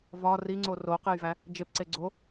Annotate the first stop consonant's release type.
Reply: click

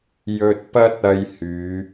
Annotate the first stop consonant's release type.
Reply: plain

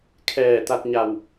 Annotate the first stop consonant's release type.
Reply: aspirated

